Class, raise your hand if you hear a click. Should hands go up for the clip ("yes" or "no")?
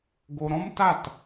no